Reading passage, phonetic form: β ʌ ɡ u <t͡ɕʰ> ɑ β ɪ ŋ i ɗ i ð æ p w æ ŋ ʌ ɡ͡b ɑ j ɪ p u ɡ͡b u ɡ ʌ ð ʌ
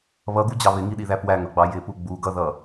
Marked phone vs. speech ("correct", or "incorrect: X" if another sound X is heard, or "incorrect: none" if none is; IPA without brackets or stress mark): incorrect: d͡ʑ